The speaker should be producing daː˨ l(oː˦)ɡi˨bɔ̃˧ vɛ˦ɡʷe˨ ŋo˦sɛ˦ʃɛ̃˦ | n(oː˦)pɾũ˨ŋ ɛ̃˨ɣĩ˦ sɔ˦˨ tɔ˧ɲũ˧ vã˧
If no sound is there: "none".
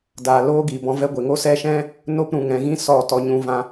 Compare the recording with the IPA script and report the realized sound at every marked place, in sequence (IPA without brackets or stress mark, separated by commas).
oː˦, o˦